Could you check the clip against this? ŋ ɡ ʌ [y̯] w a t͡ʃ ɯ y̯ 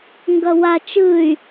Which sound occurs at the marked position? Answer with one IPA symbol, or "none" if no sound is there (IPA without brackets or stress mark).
none